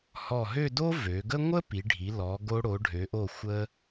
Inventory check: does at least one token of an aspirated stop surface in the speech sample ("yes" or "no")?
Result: no